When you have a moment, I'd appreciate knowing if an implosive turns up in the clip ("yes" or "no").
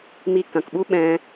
yes